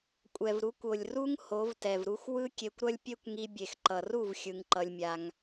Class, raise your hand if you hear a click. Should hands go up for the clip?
yes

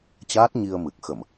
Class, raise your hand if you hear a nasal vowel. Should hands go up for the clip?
no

